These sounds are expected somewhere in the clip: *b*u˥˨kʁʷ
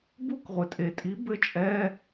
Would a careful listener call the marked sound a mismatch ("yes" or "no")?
no